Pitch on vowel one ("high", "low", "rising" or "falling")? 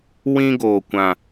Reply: high